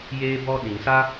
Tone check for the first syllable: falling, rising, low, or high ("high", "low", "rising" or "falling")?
high